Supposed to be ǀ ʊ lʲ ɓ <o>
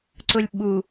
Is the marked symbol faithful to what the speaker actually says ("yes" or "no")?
no